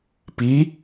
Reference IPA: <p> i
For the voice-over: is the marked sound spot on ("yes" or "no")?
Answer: yes